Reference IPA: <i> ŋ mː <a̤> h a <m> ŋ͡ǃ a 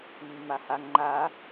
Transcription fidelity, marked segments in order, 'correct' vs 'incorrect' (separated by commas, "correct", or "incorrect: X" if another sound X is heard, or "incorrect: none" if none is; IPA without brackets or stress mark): correct, incorrect: a, incorrect: ŋ